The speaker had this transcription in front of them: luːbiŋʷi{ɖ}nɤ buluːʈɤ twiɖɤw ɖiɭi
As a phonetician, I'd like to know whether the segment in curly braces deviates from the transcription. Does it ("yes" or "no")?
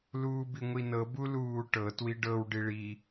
yes